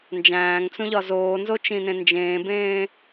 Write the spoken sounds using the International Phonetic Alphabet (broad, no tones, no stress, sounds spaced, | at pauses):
n d͡ʒ æ̃ː ŋ t͡s ũ ʎ ɒ z oː n z o t͡ʃ ĩ n ẽ n d͡ʒ ẽː b ẽː